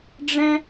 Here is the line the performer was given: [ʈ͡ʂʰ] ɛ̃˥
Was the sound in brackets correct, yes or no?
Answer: no